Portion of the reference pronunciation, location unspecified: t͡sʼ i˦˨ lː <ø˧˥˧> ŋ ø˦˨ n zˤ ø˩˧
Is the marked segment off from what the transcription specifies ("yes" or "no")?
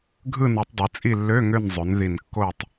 no